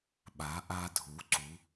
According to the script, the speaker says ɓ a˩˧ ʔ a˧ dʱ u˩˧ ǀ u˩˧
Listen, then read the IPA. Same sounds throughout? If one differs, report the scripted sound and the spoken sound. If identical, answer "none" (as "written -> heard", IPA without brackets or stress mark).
none